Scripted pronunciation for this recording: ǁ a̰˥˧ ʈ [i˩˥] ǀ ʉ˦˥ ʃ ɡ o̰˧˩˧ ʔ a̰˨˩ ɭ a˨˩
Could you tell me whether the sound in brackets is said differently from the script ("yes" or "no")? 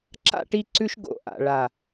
yes